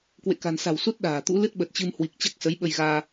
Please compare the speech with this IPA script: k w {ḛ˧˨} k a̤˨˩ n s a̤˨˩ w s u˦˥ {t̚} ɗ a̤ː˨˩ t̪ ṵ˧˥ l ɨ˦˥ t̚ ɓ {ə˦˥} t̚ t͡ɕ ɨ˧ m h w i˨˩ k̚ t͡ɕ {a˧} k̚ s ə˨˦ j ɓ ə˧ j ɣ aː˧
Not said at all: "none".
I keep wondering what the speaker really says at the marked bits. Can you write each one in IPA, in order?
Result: ḛ˧˨, t̚, ə˨˩, a˦˥

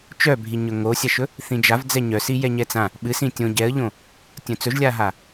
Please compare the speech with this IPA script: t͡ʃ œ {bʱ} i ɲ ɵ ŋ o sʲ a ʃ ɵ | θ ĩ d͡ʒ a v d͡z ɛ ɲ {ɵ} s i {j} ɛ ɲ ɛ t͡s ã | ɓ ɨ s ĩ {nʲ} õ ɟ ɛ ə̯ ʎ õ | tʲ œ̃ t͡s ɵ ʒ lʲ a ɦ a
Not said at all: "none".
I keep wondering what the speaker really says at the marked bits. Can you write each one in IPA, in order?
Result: bʱ, œ, j, tʲ

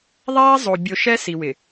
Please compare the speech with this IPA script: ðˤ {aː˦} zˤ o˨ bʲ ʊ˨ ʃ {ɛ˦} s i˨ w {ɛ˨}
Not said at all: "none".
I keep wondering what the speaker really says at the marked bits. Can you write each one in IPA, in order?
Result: aː˦, ɛ˦, ɪ˨

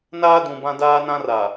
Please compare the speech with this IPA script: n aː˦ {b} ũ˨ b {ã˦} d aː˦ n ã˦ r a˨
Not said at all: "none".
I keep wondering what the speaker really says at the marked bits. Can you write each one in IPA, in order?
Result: d, ã˦

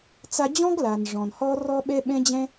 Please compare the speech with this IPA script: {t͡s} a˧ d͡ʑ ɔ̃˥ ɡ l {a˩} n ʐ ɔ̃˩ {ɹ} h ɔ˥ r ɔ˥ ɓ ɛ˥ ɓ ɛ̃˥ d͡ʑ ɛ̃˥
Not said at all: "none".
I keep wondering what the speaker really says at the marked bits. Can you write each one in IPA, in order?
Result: t͡s, a˩, n

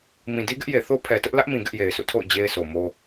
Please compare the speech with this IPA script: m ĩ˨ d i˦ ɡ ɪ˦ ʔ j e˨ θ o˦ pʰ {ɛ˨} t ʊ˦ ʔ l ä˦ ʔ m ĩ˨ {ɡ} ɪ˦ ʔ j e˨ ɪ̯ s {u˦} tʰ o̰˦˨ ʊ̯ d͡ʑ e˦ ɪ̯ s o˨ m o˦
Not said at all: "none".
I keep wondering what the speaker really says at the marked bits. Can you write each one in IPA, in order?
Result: ɛ˨, ɡ, ṵ˦˨

